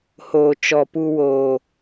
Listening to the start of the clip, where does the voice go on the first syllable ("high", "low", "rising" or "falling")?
low